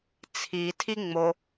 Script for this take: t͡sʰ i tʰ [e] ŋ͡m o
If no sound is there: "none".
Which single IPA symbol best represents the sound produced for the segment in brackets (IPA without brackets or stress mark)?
i